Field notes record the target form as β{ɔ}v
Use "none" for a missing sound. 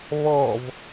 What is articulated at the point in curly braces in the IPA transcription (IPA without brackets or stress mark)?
ɔ